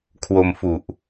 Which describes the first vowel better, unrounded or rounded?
rounded